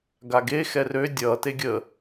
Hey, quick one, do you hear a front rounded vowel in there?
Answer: yes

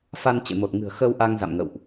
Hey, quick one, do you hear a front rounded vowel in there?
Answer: no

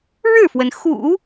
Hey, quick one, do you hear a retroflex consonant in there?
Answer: yes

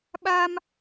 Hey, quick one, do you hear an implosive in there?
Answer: yes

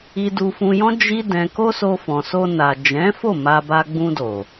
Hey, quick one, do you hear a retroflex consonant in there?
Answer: no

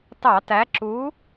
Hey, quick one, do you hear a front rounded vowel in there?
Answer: no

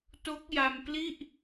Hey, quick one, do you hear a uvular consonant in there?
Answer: no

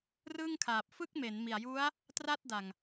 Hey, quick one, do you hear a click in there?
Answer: no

